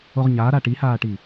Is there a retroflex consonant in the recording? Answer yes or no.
yes